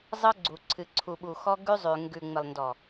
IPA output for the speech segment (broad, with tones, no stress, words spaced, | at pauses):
zˤɤ˦ɡ͡ǀu˨ǀʰɨ˨ ǀʰu˨ɓu˨xɔ˦ ɡʉ˦zˤʉ˨ ŋɡʉ˨ŋ͡mɪ˨lˠndɔ˨